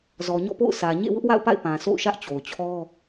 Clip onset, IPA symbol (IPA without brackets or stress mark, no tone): z